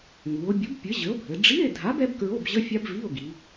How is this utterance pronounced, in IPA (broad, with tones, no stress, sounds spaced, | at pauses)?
ŋ u˩˧ o̯ bʲ u˨˥ b pʲ ɘ˨˥ ʑ ɘ˨˥ o̯ bʱ ɘ˩˧ ɖ͡ʐ i˧˥˧ e̯ dʱ a˨˥ b ɛ˦˥ b k ɹ o˧˥˧ b ʑ ə˧˥˧ fʲ a˦˥ b v i˧˥˧ o̯ ɡ i˩˧